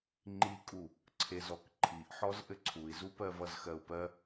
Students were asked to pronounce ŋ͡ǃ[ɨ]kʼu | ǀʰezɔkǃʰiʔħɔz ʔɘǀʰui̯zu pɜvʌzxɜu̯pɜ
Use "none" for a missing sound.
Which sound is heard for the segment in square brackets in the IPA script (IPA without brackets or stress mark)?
i